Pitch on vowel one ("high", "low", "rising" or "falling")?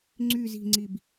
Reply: low